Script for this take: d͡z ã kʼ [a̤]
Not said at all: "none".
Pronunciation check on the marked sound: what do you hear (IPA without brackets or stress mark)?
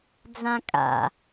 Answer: a̰